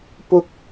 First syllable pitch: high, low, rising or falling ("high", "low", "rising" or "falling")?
high